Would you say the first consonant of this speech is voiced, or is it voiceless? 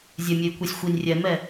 voiced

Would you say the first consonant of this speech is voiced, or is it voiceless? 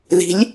voiced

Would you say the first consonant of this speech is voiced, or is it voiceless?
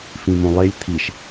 voiceless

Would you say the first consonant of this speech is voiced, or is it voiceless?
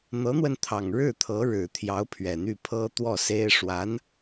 voiced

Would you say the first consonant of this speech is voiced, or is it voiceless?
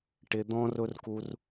voiceless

